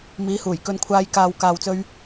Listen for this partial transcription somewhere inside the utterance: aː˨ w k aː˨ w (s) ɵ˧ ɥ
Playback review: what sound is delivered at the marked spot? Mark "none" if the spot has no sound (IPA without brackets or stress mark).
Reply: t͡s